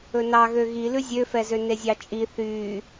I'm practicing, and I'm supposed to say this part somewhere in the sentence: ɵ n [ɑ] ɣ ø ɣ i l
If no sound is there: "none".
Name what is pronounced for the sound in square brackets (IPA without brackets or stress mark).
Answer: ɑ